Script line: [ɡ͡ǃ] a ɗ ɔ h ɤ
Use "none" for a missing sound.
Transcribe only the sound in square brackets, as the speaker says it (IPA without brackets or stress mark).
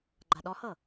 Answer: ɡ͡ǃ